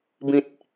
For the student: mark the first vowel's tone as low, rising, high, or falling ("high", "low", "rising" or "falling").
low